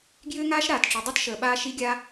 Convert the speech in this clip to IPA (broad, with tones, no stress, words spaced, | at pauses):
ɡjʏː˥ŋaː˥ʃ ɾaː˩tʈ͡ʂi˩dˤi˥tʃəː˩ ɓaː˥ʃi˥ɡʲaː˥